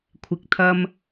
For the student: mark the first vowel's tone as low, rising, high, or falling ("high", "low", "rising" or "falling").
rising